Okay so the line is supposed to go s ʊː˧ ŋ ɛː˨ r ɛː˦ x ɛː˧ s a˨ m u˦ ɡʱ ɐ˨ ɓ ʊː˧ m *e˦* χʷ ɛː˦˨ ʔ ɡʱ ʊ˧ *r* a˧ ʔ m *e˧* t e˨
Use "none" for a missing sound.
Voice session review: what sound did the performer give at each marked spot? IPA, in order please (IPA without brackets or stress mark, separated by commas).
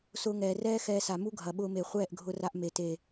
e˨, r, e˨